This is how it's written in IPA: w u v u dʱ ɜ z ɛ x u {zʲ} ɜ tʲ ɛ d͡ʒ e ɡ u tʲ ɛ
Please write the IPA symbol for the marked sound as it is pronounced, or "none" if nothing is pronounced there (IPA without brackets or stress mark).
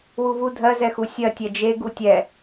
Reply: sʲ